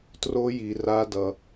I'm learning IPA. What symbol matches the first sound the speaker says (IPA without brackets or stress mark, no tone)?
t